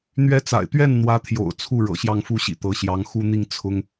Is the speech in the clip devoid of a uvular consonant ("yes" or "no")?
yes